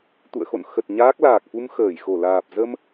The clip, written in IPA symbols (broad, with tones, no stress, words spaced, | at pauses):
t̪ṵ˧˨ə̯ xo̰˧˨n xə˨˩t̚ ɲaː˦˥k̚ laː˨˩k̚fu˧m xəː˧˩jxo˧˩laː˨˩p̚ zə˧m